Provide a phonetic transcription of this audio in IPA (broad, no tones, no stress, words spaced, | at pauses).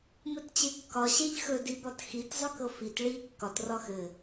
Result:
mɘtt͡ɕekːɒ ɕeʎxɵ dibɒtxit zˤɵkɤfit ɭi kːɒt rɒxɘ